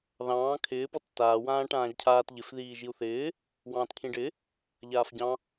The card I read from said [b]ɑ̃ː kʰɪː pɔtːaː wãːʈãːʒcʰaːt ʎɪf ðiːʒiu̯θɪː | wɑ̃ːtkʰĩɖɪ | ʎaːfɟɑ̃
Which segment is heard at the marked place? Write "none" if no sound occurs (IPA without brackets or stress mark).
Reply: ð